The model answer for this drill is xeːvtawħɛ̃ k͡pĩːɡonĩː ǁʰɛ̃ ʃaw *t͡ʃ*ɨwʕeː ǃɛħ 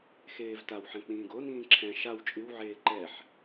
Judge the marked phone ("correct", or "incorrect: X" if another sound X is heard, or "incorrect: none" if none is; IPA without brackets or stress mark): incorrect: t͡ʃʼ